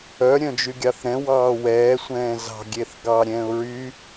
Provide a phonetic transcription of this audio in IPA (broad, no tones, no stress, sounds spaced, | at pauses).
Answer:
œ ɾʲ œ̃ d͡ʒ y ɡʲ ɑ θ ɾ ɛ̃ w ɑː w ɛː sʷ ɛ̃ː z ɑ̤ ɡʲ e θ ɡ ɑː ɾʲ ɛ̃ː ʊ̯ ɹ y